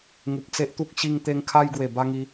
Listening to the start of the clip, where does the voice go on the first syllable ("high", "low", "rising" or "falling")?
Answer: low